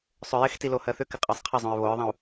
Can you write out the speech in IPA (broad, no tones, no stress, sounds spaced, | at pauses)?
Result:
sˤ ʏ j ɪ x t i l o h ɜ θ ʏ k ɪ qʼ ɜ sˤ qʰ ɪ zˤ õ ɹ β o ɹ ðˤ ĩ u̯